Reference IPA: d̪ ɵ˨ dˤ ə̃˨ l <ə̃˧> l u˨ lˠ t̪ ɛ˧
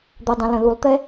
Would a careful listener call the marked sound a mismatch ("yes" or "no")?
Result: yes